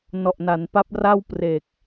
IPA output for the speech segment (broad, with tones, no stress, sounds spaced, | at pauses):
n ɔ˨˩ ʔ n a˩˦ n p a˦˥ p̚ r a˥˩ w p r e˨˩ k̚